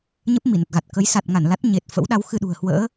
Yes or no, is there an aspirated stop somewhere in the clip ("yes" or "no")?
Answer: no